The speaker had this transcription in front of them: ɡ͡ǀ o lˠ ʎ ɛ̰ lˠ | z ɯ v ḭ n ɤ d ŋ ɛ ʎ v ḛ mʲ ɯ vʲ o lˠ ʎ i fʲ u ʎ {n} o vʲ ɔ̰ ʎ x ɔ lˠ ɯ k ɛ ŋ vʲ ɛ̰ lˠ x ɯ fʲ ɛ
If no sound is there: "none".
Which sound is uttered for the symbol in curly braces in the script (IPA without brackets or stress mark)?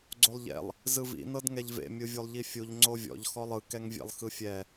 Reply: ŋ͡ǀ